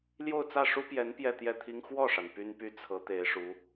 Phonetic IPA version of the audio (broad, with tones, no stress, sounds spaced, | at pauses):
l j o˥˧ ʊ̯ t͡s ä˥˩ ʂ u˥ p j ɛ˧˥ n p j ɛ˥˧ t̪ j ɛ˥˩ t̪ʰ i˥ ŋ x w ɔ˥˩ ʂ a˩ n p y˥ n p y˥ t͡sʰ ɤ˧˥ t̪ e˧˥ ɪ̯ ʂ u˧˥